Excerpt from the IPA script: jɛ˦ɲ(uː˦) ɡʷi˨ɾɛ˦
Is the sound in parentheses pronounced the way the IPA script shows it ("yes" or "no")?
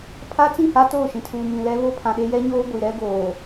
no